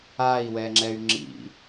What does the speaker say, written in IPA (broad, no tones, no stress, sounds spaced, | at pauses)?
a i̯ w ɛ ŋ͡ǁ ɛ y̯ ŋ͡ǁ ḭ